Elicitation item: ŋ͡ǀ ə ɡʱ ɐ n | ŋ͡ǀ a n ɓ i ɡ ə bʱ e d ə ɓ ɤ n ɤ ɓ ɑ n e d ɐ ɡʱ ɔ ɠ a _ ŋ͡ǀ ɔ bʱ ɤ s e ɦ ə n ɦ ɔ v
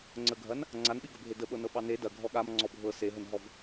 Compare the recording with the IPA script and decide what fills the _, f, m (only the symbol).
m